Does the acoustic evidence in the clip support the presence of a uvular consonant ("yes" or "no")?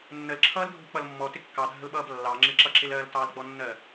no